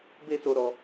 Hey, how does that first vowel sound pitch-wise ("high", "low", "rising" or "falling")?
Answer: high